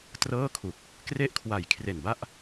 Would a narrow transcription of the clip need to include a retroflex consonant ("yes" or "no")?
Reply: no